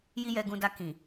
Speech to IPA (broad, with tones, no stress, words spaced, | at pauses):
ji˦jɛ˧ɡũ˧da˧ kĩ˨